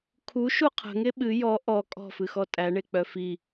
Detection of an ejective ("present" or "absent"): present